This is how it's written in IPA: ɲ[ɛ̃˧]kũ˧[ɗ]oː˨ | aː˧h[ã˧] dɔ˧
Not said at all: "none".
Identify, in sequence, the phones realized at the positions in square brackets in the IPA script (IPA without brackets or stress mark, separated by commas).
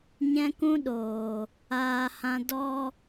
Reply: ɛ̃˧, ɗ, ã˧